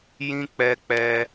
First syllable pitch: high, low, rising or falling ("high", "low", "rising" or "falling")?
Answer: high